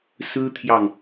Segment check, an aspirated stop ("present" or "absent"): present